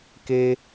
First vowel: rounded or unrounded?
unrounded